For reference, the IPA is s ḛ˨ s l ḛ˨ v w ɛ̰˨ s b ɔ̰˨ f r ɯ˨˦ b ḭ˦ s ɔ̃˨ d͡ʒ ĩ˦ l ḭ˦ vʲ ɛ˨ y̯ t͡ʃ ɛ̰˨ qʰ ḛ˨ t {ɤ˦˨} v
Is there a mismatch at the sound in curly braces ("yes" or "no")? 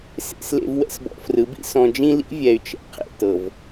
yes